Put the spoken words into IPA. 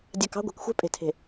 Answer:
dʲ ɑ˨ k ɑ̤˦ ɡʷ ɛ̤˨ k xʷ ɛ̤˦ pʼ e̤˨ tʰ e̤˨

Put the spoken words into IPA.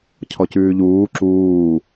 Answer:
cʰ ɔ c ʉː ʎ uː ǁ uː

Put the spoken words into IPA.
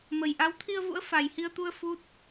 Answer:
m ə˨˩ j ʔ a˨˦ w t̪ʰ i˧ ə̯ v ṵ˧˥ ə̯ f a˨˩ j h i˧ ə̯ t̪ u˧ ə̯ f u˦˥ t̚

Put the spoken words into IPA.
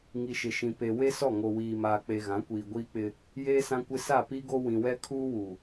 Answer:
ŋ i˨ ʃ ɪ˨ ʃ ĩ˨ p e˨ w e˦ s ɔ˦˨ ŋ o˨ w iː˨ m aː˨ k͡p e˨ ɣ ã˨˦ kʷ iː˨ ɡʷ iː˦ k͡p ɪ˦ | j eː˦ s ã˦ kʷ ɪ˦ s a˦˨ p i˦ ɡ o˦ w ĩ˨ w ɛ˦ kʰ uː˦ w u˨

